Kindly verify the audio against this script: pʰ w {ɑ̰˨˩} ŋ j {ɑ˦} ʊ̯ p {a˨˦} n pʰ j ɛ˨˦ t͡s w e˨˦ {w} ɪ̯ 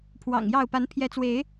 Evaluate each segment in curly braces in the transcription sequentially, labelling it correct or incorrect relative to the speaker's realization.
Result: correct, incorrect, correct, incorrect

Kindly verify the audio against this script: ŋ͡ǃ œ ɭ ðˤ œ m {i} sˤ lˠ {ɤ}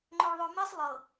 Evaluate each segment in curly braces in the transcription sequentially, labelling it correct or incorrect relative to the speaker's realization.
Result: correct, correct

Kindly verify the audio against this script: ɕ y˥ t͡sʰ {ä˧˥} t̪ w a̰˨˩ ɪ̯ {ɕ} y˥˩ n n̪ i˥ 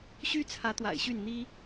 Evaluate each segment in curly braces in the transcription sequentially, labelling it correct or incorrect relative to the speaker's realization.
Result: correct, correct

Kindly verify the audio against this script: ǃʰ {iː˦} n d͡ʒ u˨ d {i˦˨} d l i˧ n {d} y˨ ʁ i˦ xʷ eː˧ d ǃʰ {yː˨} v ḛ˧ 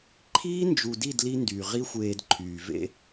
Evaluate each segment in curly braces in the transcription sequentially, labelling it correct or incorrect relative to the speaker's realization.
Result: correct, correct, correct, correct

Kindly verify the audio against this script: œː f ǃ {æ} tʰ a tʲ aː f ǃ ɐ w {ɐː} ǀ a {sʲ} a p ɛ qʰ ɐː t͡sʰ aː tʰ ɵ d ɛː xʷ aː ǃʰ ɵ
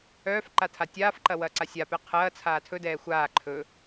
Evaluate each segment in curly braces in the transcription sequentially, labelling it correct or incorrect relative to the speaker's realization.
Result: incorrect, correct, correct

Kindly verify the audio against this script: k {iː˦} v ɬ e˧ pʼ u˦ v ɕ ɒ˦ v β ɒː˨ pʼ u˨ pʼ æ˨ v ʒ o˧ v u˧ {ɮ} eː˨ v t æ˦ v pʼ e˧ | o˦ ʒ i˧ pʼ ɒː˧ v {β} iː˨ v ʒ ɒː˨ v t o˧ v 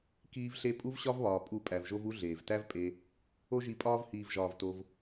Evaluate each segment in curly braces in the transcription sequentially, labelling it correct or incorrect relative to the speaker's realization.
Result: incorrect, correct, incorrect

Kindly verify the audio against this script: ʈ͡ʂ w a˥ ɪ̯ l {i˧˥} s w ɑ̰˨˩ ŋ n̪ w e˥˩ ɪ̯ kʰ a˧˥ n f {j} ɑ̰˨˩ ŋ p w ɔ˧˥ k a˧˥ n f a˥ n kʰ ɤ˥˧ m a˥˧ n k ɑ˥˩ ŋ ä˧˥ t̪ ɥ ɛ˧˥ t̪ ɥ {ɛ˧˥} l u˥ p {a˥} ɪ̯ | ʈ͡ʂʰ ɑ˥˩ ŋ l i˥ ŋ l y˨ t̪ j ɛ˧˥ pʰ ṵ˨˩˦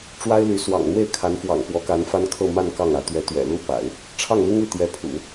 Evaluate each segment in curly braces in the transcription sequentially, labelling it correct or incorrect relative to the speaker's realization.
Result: incorrect, incorrect, incorrect, incorrect

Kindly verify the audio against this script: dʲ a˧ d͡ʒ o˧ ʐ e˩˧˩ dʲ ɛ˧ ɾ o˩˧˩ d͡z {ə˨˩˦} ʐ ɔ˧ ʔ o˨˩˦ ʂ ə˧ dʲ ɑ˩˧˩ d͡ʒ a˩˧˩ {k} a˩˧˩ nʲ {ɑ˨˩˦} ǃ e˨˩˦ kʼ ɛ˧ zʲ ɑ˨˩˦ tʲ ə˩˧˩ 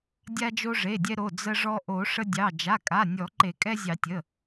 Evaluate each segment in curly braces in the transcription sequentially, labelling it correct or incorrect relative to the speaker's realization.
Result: incorrect, incorrect, incorrect

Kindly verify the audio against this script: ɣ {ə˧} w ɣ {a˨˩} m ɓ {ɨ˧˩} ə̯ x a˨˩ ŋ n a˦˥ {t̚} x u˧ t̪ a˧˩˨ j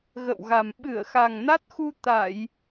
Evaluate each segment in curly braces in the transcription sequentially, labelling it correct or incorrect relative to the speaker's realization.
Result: incorrect, correct, correct, correct

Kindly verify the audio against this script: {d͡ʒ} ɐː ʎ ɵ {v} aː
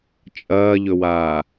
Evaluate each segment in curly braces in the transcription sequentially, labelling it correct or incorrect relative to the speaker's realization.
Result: incorrect, incorrect

